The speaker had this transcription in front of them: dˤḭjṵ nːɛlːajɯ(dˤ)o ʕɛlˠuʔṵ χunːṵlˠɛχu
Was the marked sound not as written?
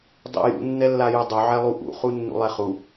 no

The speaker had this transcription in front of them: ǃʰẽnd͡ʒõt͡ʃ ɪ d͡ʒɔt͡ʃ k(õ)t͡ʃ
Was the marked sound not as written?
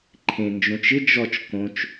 no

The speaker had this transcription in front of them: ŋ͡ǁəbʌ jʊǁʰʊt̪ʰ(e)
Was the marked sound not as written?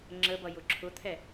yes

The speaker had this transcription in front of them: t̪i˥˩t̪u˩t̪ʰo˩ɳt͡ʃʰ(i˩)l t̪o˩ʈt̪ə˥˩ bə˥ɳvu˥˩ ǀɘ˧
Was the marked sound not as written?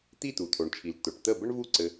no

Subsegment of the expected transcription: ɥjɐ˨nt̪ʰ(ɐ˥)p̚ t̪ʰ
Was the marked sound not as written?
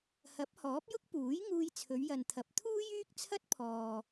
yes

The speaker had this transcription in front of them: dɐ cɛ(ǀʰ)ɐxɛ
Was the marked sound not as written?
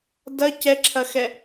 yes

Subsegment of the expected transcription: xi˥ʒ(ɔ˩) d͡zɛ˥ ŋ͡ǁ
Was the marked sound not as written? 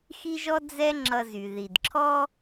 yes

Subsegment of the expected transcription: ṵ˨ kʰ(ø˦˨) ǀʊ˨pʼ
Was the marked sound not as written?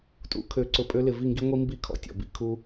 yes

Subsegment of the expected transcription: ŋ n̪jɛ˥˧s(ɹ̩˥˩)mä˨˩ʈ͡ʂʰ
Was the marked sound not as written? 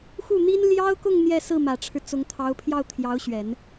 no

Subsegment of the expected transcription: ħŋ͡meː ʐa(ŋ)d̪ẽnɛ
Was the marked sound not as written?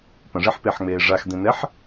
yes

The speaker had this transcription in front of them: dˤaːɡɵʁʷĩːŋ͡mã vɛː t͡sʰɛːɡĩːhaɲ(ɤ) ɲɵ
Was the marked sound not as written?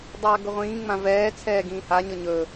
no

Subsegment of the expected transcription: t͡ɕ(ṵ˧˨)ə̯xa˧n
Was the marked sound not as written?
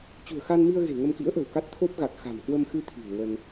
yes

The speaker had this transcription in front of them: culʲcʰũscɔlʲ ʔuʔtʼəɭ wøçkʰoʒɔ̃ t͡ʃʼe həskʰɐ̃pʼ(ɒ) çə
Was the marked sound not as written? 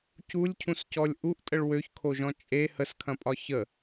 no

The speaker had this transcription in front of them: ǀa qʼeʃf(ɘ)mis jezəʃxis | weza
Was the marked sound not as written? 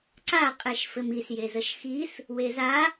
no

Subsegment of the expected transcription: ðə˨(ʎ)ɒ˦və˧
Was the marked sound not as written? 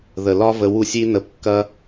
yes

